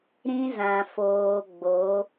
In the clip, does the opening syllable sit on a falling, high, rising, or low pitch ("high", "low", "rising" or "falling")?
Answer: high